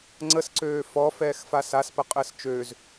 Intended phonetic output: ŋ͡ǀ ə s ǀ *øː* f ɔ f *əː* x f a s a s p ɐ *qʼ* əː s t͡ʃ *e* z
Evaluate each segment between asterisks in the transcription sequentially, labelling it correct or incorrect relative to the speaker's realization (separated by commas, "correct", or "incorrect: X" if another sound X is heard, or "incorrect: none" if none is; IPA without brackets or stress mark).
correct, incorrect: ɛː, correct, incorrect: ø